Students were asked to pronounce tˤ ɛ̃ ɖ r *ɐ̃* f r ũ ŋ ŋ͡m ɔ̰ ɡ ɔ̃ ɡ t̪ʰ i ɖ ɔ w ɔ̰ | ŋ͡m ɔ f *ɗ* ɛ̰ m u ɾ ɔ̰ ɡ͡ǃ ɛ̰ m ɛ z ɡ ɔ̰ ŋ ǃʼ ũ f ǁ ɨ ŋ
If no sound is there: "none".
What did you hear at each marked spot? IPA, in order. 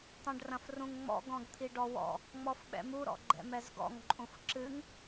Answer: ɐ̃, ɓ

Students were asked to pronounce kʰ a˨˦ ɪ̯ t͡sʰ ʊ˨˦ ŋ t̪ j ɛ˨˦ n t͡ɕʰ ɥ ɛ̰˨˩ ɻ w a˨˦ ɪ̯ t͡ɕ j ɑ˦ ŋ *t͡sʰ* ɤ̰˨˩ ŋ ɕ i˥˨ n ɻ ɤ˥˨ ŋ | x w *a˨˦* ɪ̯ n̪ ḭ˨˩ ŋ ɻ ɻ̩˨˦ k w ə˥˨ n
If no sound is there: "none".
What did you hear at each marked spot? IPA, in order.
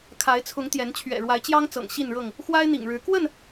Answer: t͡s, a˦

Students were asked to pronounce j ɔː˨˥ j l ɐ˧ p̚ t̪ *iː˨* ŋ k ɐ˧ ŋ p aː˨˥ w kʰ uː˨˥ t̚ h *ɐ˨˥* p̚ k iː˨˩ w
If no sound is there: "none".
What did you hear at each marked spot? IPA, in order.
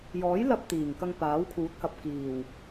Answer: iː˨˩, ɐ˨

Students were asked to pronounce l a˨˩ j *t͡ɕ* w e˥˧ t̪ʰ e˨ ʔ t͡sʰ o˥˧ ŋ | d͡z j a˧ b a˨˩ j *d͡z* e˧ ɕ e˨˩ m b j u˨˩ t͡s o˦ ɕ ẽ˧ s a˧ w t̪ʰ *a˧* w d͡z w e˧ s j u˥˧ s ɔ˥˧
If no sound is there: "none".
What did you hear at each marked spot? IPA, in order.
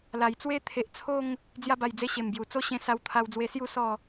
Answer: t͡s, d͡z, a˧

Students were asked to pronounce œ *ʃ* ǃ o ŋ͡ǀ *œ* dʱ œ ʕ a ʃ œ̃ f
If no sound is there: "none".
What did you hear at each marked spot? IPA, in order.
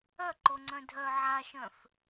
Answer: none, œ̃

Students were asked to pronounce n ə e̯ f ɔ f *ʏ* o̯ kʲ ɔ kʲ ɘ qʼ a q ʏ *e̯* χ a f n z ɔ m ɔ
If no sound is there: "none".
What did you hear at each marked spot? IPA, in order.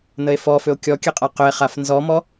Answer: ʏ, e̯

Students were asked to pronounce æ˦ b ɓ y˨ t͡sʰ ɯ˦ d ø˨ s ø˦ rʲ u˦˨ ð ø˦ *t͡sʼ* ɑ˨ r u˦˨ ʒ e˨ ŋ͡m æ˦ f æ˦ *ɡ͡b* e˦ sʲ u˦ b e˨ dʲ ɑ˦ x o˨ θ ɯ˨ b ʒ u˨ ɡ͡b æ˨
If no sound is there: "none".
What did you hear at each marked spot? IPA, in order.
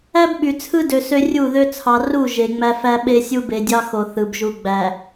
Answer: t͡sʰ, ɓ

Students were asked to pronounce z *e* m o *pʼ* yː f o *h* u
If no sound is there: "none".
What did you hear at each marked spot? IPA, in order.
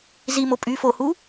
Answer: i, pʼ, h

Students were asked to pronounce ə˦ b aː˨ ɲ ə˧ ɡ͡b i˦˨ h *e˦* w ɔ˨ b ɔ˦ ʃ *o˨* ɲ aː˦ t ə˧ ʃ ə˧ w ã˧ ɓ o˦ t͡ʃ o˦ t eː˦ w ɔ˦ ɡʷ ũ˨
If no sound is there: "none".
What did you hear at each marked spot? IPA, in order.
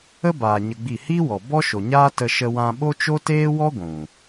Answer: i˦, o˨

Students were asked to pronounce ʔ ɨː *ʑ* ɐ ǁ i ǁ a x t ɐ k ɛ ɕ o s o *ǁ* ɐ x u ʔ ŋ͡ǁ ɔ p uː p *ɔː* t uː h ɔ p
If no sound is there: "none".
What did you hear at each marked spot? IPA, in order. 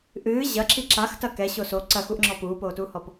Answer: ʑ, ǀ, oː

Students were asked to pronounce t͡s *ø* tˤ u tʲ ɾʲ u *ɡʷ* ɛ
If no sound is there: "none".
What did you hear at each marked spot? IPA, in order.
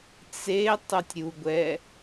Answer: e, ɡʷ

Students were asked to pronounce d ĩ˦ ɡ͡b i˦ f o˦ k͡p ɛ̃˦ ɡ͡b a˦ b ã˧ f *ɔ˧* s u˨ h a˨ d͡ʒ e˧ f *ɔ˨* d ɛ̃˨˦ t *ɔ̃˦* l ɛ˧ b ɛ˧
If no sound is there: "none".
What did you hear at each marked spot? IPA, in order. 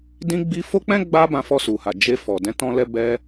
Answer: ɔ˧, ɔ˨, ɔ̃˧

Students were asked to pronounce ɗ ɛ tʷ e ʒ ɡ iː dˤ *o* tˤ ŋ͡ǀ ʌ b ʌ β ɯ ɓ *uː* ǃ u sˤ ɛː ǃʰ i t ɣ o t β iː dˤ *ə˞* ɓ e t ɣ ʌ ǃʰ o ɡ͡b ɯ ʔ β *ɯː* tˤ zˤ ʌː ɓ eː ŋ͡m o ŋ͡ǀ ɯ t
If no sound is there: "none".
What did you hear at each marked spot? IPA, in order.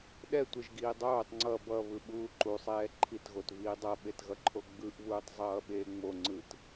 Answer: oː, uː, ʌ, uː

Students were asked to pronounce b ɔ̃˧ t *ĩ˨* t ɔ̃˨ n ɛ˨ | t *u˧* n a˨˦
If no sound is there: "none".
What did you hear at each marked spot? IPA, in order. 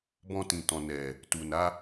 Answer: ĩ˨, u˨

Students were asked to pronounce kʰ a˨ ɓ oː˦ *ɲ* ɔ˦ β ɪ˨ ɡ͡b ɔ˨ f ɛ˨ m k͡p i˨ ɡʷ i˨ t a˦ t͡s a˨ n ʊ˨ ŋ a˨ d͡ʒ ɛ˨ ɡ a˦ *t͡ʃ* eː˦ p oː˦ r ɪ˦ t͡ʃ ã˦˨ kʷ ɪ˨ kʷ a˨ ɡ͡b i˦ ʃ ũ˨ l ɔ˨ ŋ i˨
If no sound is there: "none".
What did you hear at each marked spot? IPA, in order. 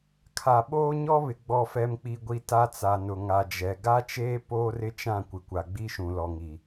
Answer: ɲ, t͡ʃ

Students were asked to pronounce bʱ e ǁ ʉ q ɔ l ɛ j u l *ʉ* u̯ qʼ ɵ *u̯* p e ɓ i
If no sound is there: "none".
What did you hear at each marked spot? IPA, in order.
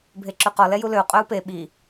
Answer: ø, u̯

